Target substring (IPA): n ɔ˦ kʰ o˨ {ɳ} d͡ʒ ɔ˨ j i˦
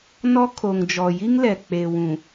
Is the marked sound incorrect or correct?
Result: incorrect: ŋ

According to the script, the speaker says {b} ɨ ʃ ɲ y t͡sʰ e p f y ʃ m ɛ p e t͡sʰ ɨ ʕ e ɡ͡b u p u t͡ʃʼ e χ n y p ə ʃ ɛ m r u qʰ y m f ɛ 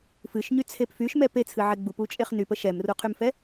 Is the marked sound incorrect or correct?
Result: incorrect: f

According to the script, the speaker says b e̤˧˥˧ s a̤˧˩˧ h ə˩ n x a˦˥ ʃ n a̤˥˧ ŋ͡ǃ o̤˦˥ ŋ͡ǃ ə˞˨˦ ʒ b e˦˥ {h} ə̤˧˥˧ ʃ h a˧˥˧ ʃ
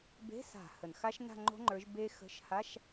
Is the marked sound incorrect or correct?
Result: incorrect: x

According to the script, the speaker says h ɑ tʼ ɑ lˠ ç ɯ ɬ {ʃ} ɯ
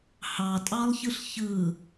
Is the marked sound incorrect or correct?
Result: incorrect: ç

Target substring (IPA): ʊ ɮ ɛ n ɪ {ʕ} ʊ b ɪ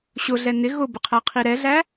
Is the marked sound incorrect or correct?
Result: incorrect: ɣ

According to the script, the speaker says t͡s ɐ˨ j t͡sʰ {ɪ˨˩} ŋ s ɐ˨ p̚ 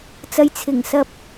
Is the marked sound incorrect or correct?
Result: correct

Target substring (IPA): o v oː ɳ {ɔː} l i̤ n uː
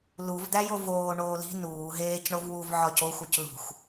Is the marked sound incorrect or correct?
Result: incorrect: oː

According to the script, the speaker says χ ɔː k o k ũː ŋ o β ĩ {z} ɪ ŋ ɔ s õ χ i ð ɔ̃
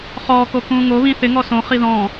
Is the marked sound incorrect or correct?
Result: incorrect: θ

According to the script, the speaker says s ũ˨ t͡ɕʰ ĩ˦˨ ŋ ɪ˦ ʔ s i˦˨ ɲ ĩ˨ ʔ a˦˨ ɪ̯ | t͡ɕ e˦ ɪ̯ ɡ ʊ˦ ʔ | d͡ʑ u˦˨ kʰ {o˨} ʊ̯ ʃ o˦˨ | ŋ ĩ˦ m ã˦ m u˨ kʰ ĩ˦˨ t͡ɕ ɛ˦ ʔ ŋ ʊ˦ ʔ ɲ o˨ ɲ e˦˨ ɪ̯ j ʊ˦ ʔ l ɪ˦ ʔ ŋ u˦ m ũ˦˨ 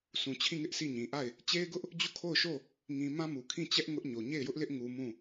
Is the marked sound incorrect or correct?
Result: incorrect: o˦˨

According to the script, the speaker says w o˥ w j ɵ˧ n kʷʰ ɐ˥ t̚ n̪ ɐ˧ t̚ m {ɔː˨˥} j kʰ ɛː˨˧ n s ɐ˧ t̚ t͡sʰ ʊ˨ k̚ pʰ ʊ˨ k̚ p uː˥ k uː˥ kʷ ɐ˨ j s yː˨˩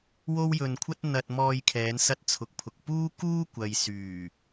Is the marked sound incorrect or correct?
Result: incorrect: ɔː˧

